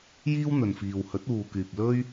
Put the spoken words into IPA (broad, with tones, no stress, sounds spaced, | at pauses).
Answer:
j iː˥ w n̪ ɵ˨ n f iː˨ w h ɵ˨˥ t̚ uː˨ k yː˨ p̚ l ɵ˥ ɥ